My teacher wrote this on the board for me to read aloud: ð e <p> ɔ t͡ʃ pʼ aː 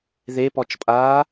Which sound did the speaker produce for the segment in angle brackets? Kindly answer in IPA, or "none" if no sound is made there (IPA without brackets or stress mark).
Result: p